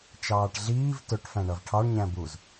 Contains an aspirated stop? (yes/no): yes